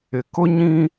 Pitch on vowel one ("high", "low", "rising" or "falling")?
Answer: low